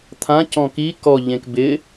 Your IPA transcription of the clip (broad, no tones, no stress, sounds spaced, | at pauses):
t̪ʰ ã c ɔ̃ k i k ɔ ʎ ẽ k b ɪ